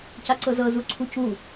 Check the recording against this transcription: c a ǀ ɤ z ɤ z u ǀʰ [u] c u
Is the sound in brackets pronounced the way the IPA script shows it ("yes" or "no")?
yes